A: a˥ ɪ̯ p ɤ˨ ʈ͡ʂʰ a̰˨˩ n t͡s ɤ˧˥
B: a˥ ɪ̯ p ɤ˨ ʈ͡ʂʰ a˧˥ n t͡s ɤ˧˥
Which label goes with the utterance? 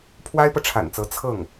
A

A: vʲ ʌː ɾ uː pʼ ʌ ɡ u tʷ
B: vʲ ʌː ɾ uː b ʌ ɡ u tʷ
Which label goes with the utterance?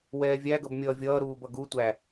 B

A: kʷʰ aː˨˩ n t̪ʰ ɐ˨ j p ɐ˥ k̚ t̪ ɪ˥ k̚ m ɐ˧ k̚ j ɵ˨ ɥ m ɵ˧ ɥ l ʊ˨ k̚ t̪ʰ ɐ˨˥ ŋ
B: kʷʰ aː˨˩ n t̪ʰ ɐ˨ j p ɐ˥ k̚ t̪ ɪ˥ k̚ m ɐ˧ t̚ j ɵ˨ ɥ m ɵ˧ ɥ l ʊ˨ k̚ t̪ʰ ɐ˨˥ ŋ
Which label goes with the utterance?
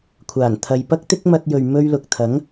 B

